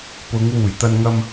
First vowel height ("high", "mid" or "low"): high